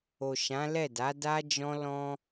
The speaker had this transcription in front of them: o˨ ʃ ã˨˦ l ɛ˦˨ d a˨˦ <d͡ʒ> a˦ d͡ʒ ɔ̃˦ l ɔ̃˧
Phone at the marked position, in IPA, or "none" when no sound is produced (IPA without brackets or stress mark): d